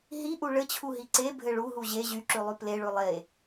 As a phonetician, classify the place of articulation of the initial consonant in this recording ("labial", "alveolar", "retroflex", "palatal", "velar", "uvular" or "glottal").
glottal